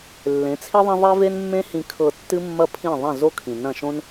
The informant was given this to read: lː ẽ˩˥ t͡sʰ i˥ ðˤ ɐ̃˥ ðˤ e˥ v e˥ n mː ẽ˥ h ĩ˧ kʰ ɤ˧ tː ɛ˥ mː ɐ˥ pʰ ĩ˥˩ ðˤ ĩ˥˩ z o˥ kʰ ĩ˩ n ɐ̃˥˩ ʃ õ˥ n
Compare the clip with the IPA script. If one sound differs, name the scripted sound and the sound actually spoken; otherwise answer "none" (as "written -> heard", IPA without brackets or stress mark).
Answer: ɛ˥ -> ɨ˥